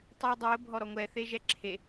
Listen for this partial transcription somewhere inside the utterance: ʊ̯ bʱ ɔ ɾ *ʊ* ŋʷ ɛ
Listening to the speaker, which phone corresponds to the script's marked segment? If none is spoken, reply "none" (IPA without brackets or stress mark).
ɔ